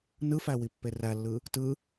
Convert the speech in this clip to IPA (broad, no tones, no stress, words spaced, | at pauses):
nɯfæwipːe rælːɯ | tɯ